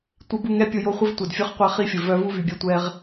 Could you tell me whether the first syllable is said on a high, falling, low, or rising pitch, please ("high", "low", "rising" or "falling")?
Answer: high